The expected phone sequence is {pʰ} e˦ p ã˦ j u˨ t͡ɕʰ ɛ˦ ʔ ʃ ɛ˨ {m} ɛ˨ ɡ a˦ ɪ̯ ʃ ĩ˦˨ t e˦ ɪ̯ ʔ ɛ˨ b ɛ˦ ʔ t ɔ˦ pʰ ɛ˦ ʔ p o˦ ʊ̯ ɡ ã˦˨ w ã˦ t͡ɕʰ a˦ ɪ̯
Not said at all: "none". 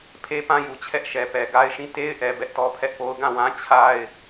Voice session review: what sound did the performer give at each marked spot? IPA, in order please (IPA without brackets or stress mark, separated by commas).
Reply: pʰ, p